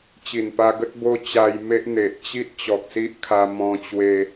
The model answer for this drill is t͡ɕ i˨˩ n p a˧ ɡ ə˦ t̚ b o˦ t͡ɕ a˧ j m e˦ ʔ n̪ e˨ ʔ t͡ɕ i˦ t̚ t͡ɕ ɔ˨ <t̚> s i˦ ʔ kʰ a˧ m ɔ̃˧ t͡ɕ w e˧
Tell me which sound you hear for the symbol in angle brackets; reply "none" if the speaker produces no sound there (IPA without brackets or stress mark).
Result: k̚